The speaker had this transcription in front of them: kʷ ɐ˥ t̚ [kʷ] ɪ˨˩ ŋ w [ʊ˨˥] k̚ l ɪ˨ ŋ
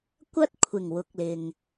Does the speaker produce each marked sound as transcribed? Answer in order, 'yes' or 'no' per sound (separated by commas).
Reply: no, yes